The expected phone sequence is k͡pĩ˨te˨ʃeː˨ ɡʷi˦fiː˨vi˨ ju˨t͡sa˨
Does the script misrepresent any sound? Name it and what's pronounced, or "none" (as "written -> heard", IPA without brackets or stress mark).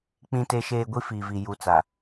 none